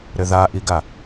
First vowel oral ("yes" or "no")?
yes